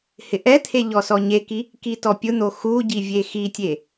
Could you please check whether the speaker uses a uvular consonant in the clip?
no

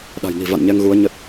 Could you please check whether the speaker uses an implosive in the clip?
yes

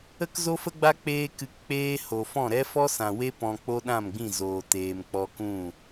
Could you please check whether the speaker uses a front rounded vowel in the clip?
no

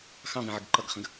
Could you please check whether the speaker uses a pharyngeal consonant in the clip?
yes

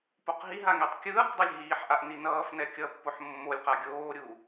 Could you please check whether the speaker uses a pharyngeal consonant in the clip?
yes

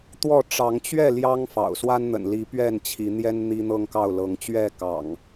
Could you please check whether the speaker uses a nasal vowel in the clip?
no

